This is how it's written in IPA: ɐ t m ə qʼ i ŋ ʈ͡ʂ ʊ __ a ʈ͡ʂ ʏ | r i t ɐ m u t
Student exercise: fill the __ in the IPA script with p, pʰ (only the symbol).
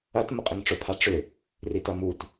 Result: pʰ